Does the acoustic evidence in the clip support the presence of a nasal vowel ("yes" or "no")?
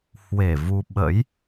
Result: no